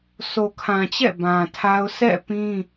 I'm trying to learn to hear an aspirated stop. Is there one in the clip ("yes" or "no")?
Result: yes